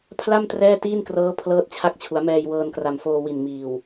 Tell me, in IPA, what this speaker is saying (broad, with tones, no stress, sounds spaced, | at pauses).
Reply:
pʰ l a˥˩ m t r ɛː˥˩ t iː˥˩ n k r ɤː˦˥ pʰ l ɤː˦˥ t̚ t͡ɕʰ a˦˥ k̚ t͡ɕʰ u˩˦ a̯ m ɛː˧ j w ɤː˧ n k r a˨˩ m f oː˧ w i˨˩ n m iː˨˩ w